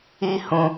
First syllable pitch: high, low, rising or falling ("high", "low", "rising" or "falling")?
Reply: high